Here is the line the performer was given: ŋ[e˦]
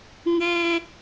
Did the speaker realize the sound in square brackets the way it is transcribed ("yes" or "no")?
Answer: yes